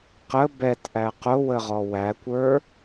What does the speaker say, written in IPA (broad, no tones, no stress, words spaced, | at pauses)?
qə bɛtʔæ qʊwəʁɔ wækʷə˞